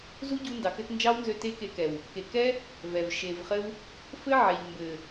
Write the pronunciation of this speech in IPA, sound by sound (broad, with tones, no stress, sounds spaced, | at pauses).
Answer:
z u˦ ɟ u˧ n d ɑ˨ k ɘ˧ t n d͡ʒ ɑ˦ w n z ø˧ t e˦ k e˧ k ɛ˨ w | k e˨ k ɛ˦ | v ɛ˨ v ʃ e˨ v χ ɘ˦ w | f ɘ˦ ʕ ɛ˨ ʎ m b ɘ˨